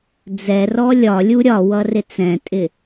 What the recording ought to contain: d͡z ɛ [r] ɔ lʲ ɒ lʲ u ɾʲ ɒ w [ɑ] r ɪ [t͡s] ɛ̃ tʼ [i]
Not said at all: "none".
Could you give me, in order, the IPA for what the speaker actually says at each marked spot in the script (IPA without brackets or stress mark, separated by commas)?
r, ʌ, t͡s, ɪ